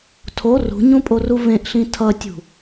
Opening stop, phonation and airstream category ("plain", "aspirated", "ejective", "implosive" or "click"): aspirated